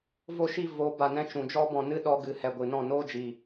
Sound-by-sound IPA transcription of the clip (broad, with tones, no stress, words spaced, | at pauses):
vo˧ʃi˧ vo˨˦ ba˨nɛ̃˧ t͡ʃũ˨d͡ʒɔ˦ bɔ̃˨ nɨ˦ɗɔ˧ɡɨ˨ hɛ˨ɡʷɨ˨nɔ̃˦˨ noː˦d͡ʒiː˨